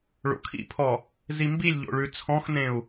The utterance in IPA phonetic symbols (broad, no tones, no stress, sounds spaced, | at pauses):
ɭ o̰ kʰ ḭ pʰ ɔ | z i m b i lʲ ʎ o̰ ɭ ʉ t͡sʰ ɔ̃ x n ẽ u̯